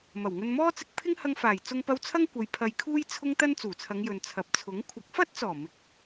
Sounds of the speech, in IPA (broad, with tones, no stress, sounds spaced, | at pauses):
m ɐ˨˩ w ŋ ɵ˧ n m ɔː˥ t͡s ɪ˧ k̚ pʰ ɪ˥ ŋ h ɐ˧ ŋ f aː˨˩ j t͡s ʊ˧ ŋ p ɐ˧ w t͡sʰ ɐ˥ ŋ kʷ ɐ˨˧ j pʰ ɐ˧ j kʰ uː˥ j t͡sʰ ʊ˥ ŋ t̪ ɐ˥ n t͡s uː˨˩ t͡sʰ ɐ˨˧ ŋ j ɵ˨ n t͡sʰ ɐ˨ p̚ t͡sʰ ʊ˨˥ ŋ kʷʰ ɐ˨˥ k̚ f ɐ˥ t̚ t͡s ɔː˨˩ m ɪ˨˥ k̚